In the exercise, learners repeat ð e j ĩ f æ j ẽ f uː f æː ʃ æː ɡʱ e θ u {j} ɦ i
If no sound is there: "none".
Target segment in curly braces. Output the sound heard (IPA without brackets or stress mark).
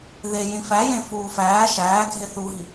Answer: none